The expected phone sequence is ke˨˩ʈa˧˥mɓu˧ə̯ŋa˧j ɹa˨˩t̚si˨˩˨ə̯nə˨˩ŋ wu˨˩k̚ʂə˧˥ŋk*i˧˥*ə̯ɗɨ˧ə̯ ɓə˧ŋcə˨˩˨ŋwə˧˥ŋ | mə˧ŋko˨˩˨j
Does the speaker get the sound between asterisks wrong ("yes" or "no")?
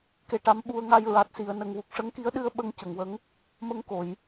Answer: no